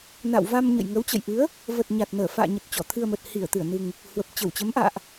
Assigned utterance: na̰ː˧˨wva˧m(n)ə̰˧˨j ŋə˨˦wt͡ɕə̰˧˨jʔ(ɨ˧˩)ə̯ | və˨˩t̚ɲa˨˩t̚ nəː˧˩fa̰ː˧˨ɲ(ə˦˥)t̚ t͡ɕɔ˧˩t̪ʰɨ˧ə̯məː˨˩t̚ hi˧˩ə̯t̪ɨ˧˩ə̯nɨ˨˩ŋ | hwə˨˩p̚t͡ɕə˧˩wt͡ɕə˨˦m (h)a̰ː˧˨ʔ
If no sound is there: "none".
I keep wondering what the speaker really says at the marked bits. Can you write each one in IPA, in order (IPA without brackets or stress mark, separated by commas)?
ɲ, ɨ˨˦, ə˨˩, ʔ